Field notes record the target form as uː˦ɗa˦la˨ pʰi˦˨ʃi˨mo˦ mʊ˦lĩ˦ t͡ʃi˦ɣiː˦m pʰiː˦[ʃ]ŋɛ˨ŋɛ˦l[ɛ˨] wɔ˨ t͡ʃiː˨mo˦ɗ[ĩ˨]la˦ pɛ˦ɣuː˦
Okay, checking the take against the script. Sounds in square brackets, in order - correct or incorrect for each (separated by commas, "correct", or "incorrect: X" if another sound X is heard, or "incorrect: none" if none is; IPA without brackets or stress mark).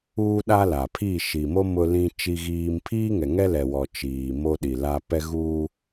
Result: incorrect: none, correct, incorrect: i˨